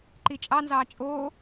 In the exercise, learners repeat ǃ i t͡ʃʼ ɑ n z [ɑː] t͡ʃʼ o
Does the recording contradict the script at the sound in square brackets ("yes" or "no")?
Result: no